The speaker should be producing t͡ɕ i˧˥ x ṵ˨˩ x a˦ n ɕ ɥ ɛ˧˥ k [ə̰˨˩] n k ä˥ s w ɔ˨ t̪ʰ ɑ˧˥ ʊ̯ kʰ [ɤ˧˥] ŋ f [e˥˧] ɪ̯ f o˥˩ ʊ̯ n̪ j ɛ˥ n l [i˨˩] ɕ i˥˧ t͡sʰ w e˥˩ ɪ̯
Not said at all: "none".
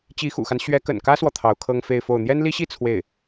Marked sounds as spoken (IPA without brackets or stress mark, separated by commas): ə̰˨˩, ɤ˥, e˥˧, i˥